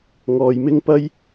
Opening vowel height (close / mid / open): mid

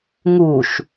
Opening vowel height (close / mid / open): close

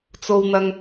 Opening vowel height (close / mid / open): mid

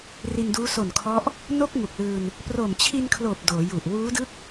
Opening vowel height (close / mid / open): close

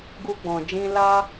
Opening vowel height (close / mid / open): close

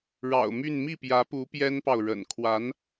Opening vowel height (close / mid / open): open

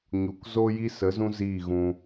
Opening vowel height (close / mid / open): close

